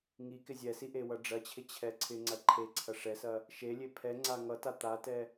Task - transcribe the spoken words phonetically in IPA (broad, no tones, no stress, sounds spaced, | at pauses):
ŋ i k ɪ zʲ ɛ s i ʔ e w ʌ ɖ͡ʐ ɐ t͡ɕʰ ɪ t͡ɕʰ ɛ ǀʰ ɪ ŋ͡ǀ ɐ ǃʰ e ǀʰ ɐ ʂ ɛ s ɐ | ʃ e lʲ e pʰ ɛ ŋ͡ǀ a ŋ ʌ t a t̪ a t ɛ